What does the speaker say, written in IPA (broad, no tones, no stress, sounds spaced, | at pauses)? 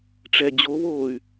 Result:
ʈ͡ʂ ɛ d͡ʑ o β oː y̯